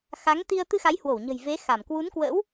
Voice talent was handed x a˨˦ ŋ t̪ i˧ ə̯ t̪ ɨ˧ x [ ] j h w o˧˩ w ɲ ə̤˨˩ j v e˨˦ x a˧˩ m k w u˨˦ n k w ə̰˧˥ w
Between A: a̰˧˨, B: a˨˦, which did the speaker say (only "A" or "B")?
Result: B